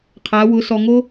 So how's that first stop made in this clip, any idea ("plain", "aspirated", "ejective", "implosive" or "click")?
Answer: aspirated